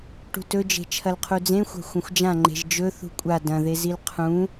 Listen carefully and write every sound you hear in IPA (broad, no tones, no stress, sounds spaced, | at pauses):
ʈ ṳ t ɵ d͡ʒ e̤ t͡ʃʰ ɐ l qʰ u d͡z ẽ xʷ a̤ xʷ ɐ̃ xʷ d͡ʒ ã ŋ͡ǃ e̤ ʒ d͡ʒ ɵ θ ṳ kʷʼ a d ɐ̃ ð e z i l qʰ ũ